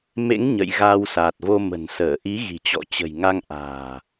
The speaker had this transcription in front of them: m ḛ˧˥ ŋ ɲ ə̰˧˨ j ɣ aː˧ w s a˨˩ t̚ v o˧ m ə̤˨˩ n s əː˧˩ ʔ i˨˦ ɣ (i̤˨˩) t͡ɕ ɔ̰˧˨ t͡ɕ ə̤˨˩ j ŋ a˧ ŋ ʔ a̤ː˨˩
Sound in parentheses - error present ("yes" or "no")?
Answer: no